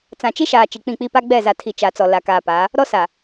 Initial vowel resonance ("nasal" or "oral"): nasal